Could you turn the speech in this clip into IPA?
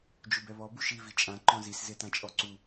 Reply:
d͡ʒ u b ɛ β ɔ b u ʃ i v i t͡ʃʼ ã ǃ ɔ̃ z i s z e t ã t͡ʃʼ ɔ ǀ u

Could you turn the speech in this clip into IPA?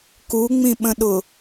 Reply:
k u ŋ͡m ĩ ɓ ə̃ ɗ ʊ

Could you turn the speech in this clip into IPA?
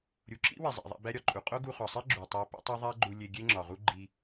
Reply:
ɾʲ u˩ ǁ ḭ˥ w e˩ zˤ æ̰˩ ðˤ æ̰˧ b æ˥ ɾʲ ɒ˩ ǃʼ u˩ qʼ o˥ ɡ u˧ χ ɒ˩ sˤ i˥ ɡ͡ǁ u˩ tˤ æ˧ p ḭ˥ tˤ o˥ ðˤ æ˥ ɡ͡ǃ u˧ lʲ e˧ ɡʲ e˥ ŋ͡ǁ ɒ˩ ʁ u˥ ɡ͡ǃ i˧

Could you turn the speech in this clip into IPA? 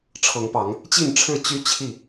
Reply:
ʈ͡ʂʰ ɤ˨˦ ŋ p ɑ˨˦ ŋ | t͡ɕ i˥˨ n ʈ͡ʂʰ ɻ̩˥˨ t͡ɕ y˦ t͡ɕʰ i˥˨

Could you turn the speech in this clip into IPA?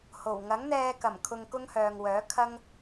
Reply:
h o˨˩ w ŋ ɐ˨˥ ŋ n̪ ɛː˧ k ɐ˨˩ m kʰ ʊ˧ ŋ k ʊ˥ ŋ h œː˨ ŋ w œː˨˥ kʰ ɐ˥ ŋ

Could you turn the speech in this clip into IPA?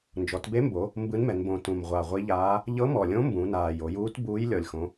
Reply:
n d͡ʒ ɔ˩˧ t b e˧˥ m b o˩˧ | m b ɯ˧˥ n m ɛ˩˧ n b õ˨˩ t ũ˨˩ m ʁʷ a˨˩ ʁʷ i˧˥ ʎ aː˧˥ | ʎ ɤ˧˥ m ɔ˨˩ lʲ õ˧˥ m b ũ˩˧ n aː˨˩ j o˩˧ j uː˧˥ t b uː˧˥ j lʲ ɔ˨˩ lʲ x õ˩˧

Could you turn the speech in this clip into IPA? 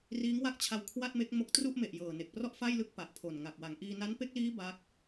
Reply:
r iː˦˥ ŋ w a˥˩ k̚ t͡ɕʰ a˧ w kʰ w a˥˩ t̚ m e˦˥ k̚ m o˥˩ k̚ t r u˥˩ ʔ m e˨˩ ʔ j ɤː˨˩ n e˨˩ k̚ p r ɔ˥˩ ʔ f a˥˩ j l ɯ˦˥ k̚ p a˨˩ ʔ pʰ o˨˩ n ŋ a˨˩ k̚ w a˩˦ ŋ ʔ iː˧ n a˦˥ n p e˦˥ k̚ l iː˦˥ b a˦˥ k̚

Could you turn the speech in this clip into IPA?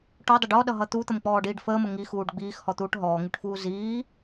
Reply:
ʈ ɔ dˤ ə ɖ ɔ ɗ ʌ ɦ ʌ t̪ u t̪ ə m k͡p ɔː ɖ iː ɖ f əː m ə ŋ i x uː ɖ ɡ͡b iː x h ɔ t̪ uː ʈ ɦ ɔː ŋ i ʈ f uː z iː

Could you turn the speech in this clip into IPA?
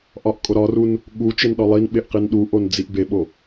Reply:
ʔ ɒ ʔ kʼ o ɾ ɒ r u n | ɠ u t͡ʃ e n ɗ ɒ lˠ i n ɓ e ʔ q i n ɗ u ʔ o n d͡z i ʔ b e ɓ o

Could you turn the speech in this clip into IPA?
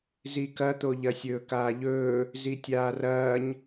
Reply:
z i k ɐ t̪ o ʎ ɐ sʲ ɵː k aː ʎ ɵː | z i tʲ aː r ɐː ɲ

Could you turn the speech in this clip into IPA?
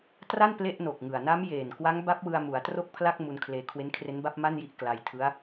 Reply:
t r a˥˩ n p l e˥˩ ʔ n o˨˩ k̚ ŋ ɯ˨˩ a̯ n a˦˥ m j eː˨˩ n k w a˦˥ ŋ b a˦˥ p̚ w ɯ˧ a̯ m u˩˦ a̯ t r o˥˩ k̚ pʰ l a˥˩ k̚ m u˧ n kʰ l eː˧ kʰ w e˦˥ n kʰ r e˦˥ n b a˥˩ p̚ m a˥˩ n j i˥˩ ʔ k l a˧ j tʰ ɯ˦˥ a̯

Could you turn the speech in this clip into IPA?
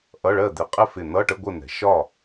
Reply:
ʔ ʌ˧˥˧ ɭ ɜ˥˨ d̪ ɪ˨˩˦ qʼ ɪ˥˨ f ɪ˧˩ n̪ ʌ˧˥˧ ʈ ə˧˥˧ ɡʷ ə˥˨ n̪ ɛ̤˨˩˦ ʃ ɒ˥˨

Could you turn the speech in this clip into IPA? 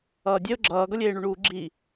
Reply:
ʌː dʲ e ʊ̯ ɡ͡ǁ ʌː ɡ ʌ lʲ eː ɳ u ɳ uː ɡ͡ǁ i

